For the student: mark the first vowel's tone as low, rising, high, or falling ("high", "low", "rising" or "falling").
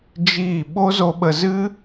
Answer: falling